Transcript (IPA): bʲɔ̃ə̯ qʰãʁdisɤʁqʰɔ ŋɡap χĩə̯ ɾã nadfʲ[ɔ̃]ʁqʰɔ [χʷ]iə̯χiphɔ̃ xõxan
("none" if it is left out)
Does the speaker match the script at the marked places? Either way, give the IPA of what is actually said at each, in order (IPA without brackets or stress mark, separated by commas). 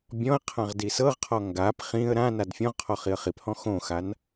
ɔ̃, χ